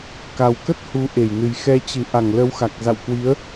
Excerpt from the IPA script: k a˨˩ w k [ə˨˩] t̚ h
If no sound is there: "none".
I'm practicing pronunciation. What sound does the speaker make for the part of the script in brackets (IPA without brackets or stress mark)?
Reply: ə˦˥